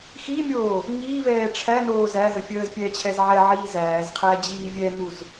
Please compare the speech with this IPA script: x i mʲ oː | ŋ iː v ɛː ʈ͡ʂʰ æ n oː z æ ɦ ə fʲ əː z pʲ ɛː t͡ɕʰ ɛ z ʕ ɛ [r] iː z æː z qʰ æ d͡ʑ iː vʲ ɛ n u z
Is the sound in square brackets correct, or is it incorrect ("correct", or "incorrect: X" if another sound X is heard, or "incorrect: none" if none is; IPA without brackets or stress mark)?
incorrect: ʕ